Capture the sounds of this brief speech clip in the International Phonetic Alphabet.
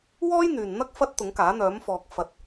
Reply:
w ɔː˥ j n̪ yː˨ n n̪ ɐ˥ k̚ f ɐ˥ t̚ t̪ ʊ˨˥ ŋ k aː˨˥ n̪ œː˨˥ m f ɔː˨ k̚ f ɐ˨ t̚

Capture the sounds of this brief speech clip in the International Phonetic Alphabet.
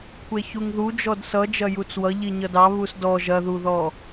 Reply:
kʷʰ e ç u ŋ ð u d͡ʒ ɔ d s ʌ d͡ʒ ɐ j u t͡s w ʌ ʎ i ɲ ʌ d ɑ β u s d ɔ ʒ ɐ ð u ð ɔ

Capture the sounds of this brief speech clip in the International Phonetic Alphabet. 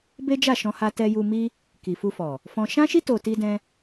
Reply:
b e˦ d͡ʒ a˦˨ ʃ ɔ̃˧ h a˧ t ɛ˧ j u˧ m i˦ | k i˨ f u˧ f ɔ˨ | f ɔ̃˦ ʃ ã˦ ʃ i˦ t o˧ t i˦ d ɛ̃˦

